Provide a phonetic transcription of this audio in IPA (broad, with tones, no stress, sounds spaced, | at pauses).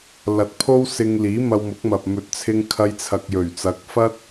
l ɐ˨ t̚ pʰ o˥ w s ɪ˧ ŋ l iː˨˥ m ɐ˧ w m ʊ˨˥ k̚ m ɐ˨ p̚ m ɵ˨ t̚ t͡sʰ ɪ˧ ŋ kʰ ɐ˧ j t͡sʰ ɐ˨ k̚ j ɵ˨˩ ɥ t͡s ɐ˨˥ k̚ f ɐ˥ t̚